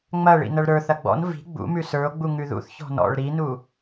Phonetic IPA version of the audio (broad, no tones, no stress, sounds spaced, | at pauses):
ŋ͡m ɐ ɭ ḭ n ɐ ɭ ɾ ə˞ θ ɐ ɡ͡b ɔ̰ n v i̤ ɡ͡b ṵ m ʉ s ə˞ o̯ ɡ͡b u ŋ ʉ ð ṵ θ ç ɔ̤ n ɔ̰ ɭ ɾ i n u